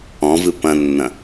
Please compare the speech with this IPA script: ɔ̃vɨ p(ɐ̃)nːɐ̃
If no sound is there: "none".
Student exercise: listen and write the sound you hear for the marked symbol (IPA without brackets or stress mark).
ɐ̃